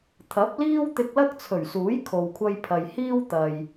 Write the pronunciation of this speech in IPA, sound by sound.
t̪ʰ ɐ˨˥ p̚ l iː˥ w t̪ ɪ˧ k̚ l ɐ˥ k̚ t͡sʰ ɵ˨˩ ɥ s uː˨˥ j kʰ o˨ w kʷʰ ɐ˧ j pʰ ɐ˨ j h iː˥ w t̪ ɐ˨ j

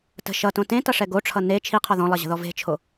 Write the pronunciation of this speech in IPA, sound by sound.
t ə̤ ʃ ʌ t õ t ẽ t ʌ ʂ ɛ ɡ o ʈ͡ʂʰ ʌ n e t͡ʃʰ i qʰ ɔ ð ɔ̃ lˠ ʌ ʑ ə̤ ð ɔ v e̤ t͡ʃʰ o

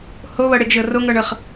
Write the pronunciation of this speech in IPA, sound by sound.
h o β ɤ ɽ e ɡ ʒ ɤ r o ŋ ɤ ɳ ɤ χ

